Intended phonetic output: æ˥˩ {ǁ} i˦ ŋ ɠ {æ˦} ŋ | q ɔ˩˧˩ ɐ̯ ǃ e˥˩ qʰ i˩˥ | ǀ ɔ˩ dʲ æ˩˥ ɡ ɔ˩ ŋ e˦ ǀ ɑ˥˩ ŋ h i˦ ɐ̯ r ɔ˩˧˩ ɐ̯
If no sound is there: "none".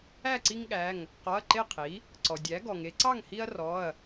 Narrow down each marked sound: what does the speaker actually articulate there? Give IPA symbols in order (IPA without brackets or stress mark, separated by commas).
ǀ, æ˩˧˩